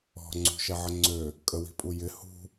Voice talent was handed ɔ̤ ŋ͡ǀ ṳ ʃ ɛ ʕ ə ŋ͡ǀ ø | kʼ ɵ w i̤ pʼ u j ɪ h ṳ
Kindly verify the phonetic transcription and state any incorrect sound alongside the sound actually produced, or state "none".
ɵ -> ə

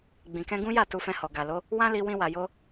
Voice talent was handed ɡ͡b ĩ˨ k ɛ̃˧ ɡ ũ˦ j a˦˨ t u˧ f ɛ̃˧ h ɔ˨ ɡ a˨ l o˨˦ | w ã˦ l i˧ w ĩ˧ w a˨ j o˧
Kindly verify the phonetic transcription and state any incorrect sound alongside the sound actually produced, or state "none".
none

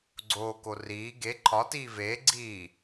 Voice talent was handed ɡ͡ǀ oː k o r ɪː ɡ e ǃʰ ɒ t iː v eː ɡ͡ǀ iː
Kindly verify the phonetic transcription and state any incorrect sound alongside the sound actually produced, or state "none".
ɪː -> iː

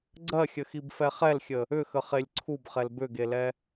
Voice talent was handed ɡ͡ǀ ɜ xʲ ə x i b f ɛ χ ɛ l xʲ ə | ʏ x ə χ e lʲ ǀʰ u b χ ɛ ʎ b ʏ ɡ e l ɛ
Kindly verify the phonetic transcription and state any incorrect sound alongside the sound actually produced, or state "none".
ʎ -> l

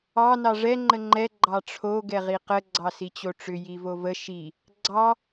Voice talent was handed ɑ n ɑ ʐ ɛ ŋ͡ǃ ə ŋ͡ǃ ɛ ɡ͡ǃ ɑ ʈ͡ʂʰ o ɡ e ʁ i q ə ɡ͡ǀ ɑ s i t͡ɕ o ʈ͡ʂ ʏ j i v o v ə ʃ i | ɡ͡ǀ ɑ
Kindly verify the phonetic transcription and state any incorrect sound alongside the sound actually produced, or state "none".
e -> ɛ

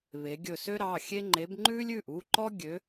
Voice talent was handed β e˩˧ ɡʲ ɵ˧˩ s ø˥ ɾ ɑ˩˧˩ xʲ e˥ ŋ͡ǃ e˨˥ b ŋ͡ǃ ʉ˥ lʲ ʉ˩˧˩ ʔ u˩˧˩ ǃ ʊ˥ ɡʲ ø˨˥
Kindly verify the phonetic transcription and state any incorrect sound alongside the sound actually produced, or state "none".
ʊ˥ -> ɔ˥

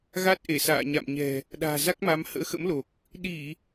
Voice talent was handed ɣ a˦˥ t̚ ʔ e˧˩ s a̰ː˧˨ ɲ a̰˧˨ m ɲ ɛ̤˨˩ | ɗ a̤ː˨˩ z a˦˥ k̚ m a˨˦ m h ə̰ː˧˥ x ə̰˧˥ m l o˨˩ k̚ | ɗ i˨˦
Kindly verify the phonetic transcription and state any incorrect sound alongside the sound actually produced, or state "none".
i˨˦ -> i˧˩˨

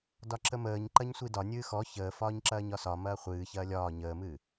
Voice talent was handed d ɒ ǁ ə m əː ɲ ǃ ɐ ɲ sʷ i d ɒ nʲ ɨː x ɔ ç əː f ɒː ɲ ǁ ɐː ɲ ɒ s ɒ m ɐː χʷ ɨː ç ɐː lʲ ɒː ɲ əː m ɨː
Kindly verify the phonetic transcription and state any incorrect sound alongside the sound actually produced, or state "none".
none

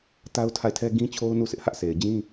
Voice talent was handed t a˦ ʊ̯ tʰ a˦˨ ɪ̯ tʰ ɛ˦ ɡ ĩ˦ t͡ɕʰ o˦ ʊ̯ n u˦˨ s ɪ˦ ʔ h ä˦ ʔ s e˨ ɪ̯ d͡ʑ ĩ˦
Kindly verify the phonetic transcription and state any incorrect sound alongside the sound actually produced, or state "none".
none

